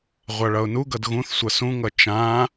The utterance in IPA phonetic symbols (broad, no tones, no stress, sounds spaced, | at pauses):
ʁʷ a ɭ ʌ ʊ̯ n u ɡ ʌ d ɣ ũ θ sʷ ʌ s ũ ŋ ʌ t͡ʃ ã